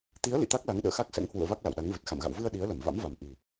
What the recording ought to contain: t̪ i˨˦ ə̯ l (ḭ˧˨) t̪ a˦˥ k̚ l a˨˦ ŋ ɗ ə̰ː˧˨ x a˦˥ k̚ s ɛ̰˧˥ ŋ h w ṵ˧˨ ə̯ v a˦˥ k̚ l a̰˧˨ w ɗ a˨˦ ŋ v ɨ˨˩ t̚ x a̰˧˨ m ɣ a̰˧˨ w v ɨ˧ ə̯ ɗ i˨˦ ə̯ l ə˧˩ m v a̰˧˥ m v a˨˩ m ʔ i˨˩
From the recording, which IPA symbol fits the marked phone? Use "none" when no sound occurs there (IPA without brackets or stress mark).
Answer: ḭ˧˨